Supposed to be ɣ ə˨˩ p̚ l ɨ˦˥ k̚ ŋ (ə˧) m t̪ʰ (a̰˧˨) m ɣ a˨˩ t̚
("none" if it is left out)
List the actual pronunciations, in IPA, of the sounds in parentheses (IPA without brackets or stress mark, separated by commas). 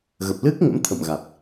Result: ə̰˧˥, ə̰˧˨